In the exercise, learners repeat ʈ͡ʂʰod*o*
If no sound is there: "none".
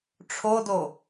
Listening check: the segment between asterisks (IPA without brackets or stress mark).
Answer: o